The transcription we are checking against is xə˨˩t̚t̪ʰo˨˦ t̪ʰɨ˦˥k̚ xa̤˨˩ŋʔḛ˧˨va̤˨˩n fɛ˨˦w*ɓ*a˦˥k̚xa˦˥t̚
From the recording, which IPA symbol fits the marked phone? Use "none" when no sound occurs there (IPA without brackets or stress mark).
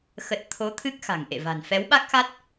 ɓ